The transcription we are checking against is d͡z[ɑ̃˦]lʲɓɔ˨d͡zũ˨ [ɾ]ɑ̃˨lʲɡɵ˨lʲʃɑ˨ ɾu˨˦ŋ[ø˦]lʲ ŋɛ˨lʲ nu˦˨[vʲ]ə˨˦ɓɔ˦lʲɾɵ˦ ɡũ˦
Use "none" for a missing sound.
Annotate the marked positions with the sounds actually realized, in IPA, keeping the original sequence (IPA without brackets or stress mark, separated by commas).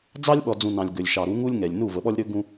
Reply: ɑ˦, n, u˦, v